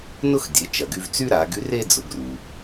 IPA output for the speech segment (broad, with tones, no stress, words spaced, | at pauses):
nʊ˥xdʲe˩˧ t͡ʃɐ˩ɡy˧vt͡sy˥ ɾa˩˧ ɡy˧˥re˥ d͡zʊ˩˧ɡru˩